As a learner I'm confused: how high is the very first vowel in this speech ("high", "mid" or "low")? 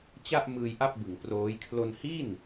low